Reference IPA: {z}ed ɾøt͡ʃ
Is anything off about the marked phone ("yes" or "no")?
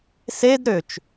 yes